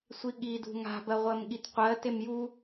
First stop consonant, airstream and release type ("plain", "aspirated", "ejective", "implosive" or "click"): implosive